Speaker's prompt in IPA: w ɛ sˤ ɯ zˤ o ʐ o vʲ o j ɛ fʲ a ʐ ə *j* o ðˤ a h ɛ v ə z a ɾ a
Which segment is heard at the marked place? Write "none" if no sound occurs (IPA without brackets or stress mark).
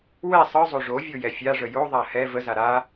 j